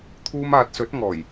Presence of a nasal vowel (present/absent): absent